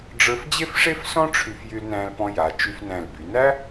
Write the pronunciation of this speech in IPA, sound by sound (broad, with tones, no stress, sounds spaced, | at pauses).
ɖ͡ʐ ə˞˧ f d͡ʑ e˥ f ʂ e˥ f s ɔ̃˥ ʈ͡ʂʰ y˧ f j y˧ l n æ̃˧ l p ɔ̃˧ j a˩˧ t͡ʃ y˧ f n æ̃˧˩ l b y˩˧ n æ˥